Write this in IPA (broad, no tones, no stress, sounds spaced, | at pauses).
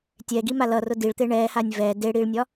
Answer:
tʲ ɛ ɡ i m a l ʌ r ʊ d i ɭ t̪ e ɳ ɛː h a nʲ v ɛ d e ɽ i ɭ nʲ ɒ